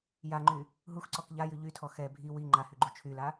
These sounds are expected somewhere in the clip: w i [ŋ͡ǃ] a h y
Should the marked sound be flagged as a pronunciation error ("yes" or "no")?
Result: no